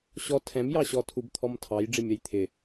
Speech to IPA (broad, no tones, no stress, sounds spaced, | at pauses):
ɕ ɔ tʰ ɛ̃ m j ɑ ɕ ɔ tʰ u b t̪ʰ ɔ m tʰ ɑ j ɖ͡ʐ ɪ mʲ ʌ j t̪ʰ ɪ